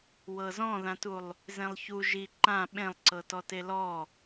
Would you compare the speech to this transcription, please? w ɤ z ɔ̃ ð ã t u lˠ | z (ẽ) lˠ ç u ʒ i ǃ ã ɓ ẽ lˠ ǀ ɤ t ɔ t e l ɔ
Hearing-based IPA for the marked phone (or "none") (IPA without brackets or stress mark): ẽ